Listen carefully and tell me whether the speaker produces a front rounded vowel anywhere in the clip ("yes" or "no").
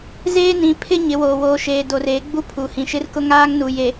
no